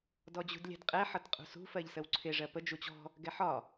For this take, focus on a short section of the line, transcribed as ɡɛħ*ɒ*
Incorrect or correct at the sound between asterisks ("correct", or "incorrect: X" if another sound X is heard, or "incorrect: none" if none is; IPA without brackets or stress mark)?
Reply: correct